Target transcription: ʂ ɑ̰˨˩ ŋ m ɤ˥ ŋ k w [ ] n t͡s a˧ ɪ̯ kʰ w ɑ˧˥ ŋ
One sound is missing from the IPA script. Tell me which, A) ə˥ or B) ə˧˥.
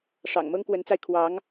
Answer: B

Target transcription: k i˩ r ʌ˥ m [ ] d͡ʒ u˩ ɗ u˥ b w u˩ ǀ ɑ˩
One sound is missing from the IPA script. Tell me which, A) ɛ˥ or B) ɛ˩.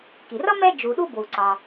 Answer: A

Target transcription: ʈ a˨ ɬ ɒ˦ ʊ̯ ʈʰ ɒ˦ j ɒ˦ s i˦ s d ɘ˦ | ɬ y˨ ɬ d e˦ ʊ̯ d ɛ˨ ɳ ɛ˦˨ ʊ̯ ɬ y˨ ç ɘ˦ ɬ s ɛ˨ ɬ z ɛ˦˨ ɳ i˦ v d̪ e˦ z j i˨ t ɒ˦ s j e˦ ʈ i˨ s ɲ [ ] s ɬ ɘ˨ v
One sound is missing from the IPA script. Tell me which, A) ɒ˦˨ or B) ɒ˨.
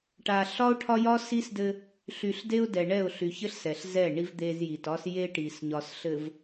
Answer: B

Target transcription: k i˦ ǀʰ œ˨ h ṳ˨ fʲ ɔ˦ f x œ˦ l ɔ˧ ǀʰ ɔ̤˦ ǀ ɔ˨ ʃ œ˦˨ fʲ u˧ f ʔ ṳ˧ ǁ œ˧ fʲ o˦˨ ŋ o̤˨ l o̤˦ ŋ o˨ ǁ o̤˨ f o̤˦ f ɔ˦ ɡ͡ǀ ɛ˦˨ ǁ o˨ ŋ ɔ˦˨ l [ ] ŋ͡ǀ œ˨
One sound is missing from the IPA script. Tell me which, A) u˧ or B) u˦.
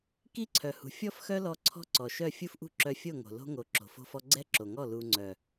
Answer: A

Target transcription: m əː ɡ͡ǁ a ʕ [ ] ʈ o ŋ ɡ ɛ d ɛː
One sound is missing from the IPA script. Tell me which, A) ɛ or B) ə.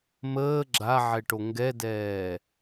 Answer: A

